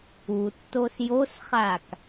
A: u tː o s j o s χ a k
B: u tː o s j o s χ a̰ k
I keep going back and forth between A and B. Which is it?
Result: A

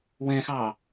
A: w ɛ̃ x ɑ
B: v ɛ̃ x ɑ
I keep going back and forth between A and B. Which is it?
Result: A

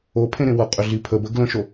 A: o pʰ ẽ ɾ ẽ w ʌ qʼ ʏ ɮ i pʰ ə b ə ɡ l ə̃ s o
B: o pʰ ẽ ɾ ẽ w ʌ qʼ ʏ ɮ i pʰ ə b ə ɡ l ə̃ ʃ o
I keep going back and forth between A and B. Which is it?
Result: B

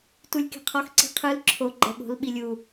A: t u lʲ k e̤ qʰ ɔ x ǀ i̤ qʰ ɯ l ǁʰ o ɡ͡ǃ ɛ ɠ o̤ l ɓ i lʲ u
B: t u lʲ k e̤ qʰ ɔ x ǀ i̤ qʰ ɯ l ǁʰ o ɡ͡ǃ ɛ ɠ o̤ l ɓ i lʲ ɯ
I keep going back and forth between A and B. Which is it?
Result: A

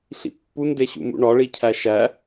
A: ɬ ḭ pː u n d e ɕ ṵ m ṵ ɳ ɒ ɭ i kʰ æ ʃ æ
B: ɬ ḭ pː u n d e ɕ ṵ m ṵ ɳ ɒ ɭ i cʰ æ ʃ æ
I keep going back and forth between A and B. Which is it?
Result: B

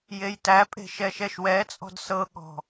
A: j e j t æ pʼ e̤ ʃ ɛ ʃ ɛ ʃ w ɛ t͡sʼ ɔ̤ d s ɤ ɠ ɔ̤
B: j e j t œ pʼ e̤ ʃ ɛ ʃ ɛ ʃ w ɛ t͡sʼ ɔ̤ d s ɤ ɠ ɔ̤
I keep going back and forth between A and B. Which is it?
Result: A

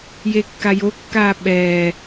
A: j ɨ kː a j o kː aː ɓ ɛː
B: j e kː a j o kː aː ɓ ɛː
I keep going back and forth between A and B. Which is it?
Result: B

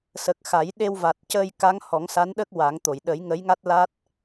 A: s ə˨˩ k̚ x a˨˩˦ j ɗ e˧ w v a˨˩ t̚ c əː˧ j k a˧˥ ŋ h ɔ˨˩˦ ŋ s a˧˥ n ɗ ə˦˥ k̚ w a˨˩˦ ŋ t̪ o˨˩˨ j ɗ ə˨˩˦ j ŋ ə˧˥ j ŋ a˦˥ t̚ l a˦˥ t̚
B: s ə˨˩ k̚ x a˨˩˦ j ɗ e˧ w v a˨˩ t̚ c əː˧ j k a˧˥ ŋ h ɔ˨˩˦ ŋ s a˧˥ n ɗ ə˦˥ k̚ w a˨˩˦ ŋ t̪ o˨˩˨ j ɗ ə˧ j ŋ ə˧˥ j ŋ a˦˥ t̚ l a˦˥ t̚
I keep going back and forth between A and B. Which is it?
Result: A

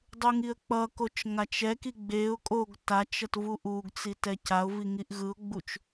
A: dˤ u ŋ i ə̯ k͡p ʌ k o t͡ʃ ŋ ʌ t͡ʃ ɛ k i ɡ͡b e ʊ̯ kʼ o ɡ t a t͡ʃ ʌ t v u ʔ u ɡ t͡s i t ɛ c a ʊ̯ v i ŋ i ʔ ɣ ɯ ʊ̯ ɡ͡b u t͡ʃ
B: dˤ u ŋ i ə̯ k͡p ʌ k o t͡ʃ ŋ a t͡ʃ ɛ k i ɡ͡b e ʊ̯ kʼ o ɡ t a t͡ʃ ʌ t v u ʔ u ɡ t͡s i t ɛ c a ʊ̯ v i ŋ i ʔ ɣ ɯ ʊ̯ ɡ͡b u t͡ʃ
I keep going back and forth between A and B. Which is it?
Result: B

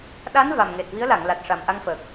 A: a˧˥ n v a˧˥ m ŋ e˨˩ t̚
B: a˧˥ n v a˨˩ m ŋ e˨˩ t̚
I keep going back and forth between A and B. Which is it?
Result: B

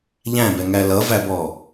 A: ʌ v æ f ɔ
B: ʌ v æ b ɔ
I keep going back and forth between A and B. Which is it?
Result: B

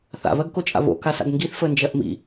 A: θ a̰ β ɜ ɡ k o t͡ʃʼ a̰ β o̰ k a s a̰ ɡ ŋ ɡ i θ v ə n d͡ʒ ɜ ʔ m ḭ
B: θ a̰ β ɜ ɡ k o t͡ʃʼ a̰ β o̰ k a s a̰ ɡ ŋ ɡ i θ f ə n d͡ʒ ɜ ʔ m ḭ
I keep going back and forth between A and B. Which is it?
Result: B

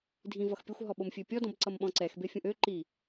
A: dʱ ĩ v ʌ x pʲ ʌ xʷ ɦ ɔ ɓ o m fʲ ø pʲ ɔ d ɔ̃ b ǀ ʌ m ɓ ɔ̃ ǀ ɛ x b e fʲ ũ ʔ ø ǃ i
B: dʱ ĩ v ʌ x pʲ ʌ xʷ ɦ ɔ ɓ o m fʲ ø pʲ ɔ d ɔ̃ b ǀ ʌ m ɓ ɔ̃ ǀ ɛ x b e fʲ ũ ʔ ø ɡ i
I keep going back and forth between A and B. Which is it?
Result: A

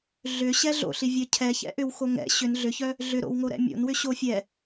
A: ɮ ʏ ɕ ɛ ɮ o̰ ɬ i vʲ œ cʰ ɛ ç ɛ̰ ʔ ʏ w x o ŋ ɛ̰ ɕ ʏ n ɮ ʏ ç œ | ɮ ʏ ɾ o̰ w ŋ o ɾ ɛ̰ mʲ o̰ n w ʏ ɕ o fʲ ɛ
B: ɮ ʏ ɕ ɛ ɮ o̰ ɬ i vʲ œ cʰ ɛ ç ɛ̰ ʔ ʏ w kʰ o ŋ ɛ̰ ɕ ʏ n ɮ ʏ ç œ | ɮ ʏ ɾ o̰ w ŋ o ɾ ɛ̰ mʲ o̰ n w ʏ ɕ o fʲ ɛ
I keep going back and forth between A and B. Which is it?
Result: A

